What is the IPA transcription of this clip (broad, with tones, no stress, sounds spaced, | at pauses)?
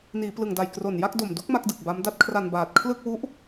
n iː˩˦ p l ɯ˨˩ ŋ d a˨˩ j k r o˨˩ n j a˥˩ k̚ d o˨˩ m d u˦˥ k̚ m a˦˥ k̚ d ɯ˨˩ k̚ b a˦˥ m d a˦˥ t̚ kʰ r a˧ n b aː˨˩ t̚ kʰ l ɯ˥˩ k̚ w u˦˥ ʔ